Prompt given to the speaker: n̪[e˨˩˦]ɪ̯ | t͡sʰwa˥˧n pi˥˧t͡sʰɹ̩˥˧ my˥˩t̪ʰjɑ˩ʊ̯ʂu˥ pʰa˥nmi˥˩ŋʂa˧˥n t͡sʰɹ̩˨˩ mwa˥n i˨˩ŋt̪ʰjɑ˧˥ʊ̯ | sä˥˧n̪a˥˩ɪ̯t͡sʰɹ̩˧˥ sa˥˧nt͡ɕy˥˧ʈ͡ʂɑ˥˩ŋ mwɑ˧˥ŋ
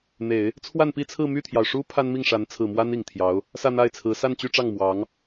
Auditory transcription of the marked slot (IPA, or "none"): e˨˩˦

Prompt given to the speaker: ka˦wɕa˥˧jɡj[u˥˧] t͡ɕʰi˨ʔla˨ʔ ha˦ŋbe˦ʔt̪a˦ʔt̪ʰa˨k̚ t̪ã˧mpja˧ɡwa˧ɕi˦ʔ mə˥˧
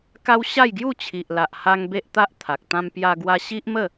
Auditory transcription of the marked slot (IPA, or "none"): u˥˧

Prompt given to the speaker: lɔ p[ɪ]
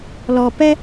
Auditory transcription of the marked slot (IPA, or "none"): ɛ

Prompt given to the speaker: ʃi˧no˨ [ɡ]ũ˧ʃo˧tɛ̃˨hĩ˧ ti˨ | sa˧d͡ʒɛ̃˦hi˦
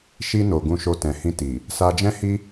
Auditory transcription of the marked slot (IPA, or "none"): ɡ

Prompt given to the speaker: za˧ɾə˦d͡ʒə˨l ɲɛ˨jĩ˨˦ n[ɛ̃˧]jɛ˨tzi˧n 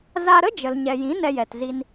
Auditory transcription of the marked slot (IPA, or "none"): ɛ˧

